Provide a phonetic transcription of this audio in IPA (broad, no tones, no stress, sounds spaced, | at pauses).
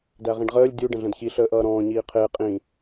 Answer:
d æ ʁ ĩ ɖ ʁ əː lʲ dʲ u ɖ ə̃ ɮ ə̃ d ç i ɬ əː ʔ ʌː ɾ ɔ̃ː ɲ iː qʰ ɪː qʼ ĩ